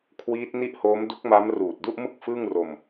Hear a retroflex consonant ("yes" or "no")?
no